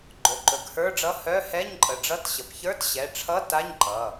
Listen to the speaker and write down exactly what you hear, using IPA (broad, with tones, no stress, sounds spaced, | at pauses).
ɡ͡ǃ ɵ˩˧˩ ǃ ɵ˩˧˩ ɡ h ə˞˧˥˧ ɖ͡ʐ ʌ˧˥˧ h œ˧˥˧ h ɛ˧˥˧ ɲ ǃʼ ə˩˧˩ ɖ͡ʐ ʌ˧˥˧ t ɕ ə˩˧˩ p ç ə˞˧˥˧ t ɕ ɛ˩˧˩ ʈ͡ʂʰ ʌ˧˥˧ t a˧˥˧ ɲ ǃ ʌ˩˧˩